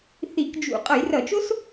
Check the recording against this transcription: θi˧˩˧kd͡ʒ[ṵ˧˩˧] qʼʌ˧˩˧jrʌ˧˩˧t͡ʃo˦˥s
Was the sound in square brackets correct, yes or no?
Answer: yes